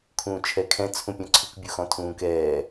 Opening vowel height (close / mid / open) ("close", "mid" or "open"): close